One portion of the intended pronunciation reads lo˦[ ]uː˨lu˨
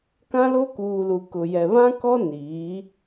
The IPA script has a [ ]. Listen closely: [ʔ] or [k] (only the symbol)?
k